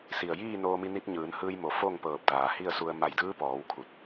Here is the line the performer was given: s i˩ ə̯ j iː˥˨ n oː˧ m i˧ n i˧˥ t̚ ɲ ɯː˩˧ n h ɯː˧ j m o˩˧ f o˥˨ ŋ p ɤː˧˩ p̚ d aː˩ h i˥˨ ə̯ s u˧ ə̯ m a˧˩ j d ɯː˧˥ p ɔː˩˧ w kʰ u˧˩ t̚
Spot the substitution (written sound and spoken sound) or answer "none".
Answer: none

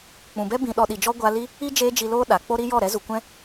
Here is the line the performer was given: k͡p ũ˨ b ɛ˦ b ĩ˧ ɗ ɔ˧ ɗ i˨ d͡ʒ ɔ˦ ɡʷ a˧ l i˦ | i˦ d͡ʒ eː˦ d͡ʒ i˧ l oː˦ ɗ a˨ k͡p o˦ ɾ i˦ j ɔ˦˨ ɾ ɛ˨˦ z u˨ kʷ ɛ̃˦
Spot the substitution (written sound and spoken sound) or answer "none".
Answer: none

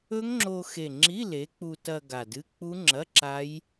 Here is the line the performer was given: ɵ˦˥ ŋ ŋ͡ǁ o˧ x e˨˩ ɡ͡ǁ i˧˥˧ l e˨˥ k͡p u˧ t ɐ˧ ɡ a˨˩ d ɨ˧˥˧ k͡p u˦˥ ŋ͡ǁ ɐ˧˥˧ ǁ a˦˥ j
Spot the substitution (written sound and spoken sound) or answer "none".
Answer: ɡ͡ǁ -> ŋ͡ǁ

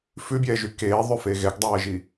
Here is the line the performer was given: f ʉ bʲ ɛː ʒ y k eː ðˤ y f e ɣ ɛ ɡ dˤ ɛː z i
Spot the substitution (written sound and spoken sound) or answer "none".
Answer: z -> ʒ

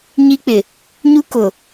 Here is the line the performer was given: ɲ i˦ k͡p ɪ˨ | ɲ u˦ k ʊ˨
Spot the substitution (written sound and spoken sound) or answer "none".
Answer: none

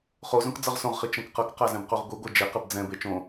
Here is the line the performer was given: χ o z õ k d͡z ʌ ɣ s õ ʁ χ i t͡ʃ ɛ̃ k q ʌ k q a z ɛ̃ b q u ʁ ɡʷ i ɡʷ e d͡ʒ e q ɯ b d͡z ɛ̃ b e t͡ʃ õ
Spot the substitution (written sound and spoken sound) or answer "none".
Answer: ɣ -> ʁ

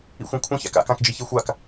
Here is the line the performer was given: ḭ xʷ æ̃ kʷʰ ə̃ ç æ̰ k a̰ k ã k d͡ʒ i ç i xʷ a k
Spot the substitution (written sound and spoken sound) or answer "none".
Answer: none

